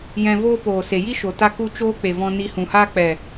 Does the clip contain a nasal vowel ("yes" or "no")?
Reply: yes